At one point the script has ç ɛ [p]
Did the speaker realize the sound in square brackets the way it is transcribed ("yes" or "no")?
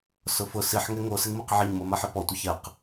no